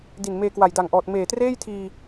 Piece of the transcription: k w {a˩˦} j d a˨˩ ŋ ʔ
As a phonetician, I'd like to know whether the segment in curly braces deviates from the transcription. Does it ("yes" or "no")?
yes